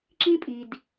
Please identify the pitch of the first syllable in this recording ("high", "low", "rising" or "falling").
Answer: high